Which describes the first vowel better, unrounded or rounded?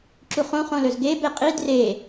rounded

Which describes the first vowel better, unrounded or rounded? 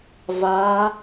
unrounded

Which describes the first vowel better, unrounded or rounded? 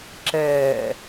unrounded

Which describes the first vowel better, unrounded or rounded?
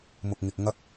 rounded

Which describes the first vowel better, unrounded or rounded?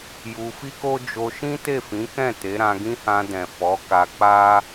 rounded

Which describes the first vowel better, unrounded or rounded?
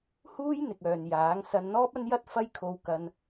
rounded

